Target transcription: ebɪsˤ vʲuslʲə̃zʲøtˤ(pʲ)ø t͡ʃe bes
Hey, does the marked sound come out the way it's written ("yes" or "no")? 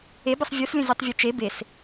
no